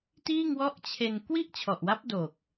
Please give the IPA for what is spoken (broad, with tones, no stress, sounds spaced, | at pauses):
t iː˥˩ ŋ w ɔ˥˩ ʔ t͡ɕʰ e˧ n k w i˥˩ ʔ t͡ɕʰ ɔ˨˩ ʔ w a˦˥ p̚ d o˨˩ k̚